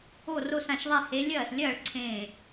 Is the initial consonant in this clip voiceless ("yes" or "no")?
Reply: no